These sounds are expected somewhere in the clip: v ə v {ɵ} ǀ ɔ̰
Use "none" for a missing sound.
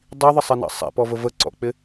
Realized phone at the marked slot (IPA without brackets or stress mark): ə